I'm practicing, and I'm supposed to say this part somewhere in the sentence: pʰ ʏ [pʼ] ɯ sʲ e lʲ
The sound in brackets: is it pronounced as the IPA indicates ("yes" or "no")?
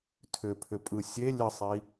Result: yes